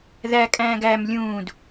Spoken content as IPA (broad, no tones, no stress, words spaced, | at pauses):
ðækʼæ̃ːɡ æm lʲũːd